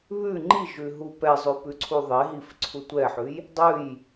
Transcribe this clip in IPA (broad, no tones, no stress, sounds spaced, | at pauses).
β ʉ ŋ͡ǃ i ʒ ʉ ɦ u p ɛ zˤ ʉ p ʉ ǀʰ u ðˤ e ɦ i f ǀʰ u tʷ ɛ ħ ʉ j | dˤ ʉ j